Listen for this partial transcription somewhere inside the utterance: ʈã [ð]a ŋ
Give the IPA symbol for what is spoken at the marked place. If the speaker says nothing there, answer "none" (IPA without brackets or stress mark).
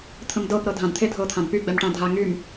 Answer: dʱ